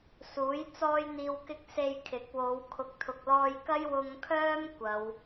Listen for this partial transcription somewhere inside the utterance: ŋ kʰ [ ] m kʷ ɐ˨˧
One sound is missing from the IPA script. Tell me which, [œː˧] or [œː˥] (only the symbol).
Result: œː˥